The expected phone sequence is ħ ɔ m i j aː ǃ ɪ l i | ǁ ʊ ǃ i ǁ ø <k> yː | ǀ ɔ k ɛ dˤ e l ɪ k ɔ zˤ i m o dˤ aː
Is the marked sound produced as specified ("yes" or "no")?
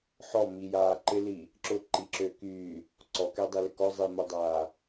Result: yes